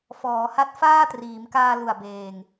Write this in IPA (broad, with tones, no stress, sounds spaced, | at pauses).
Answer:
f ɔː˩˦ h a˦˥ t̚ f aː˥˩ t r iː˩˦ m k aː˧ l u˨˩ a̯ b eː˨˩ ŋ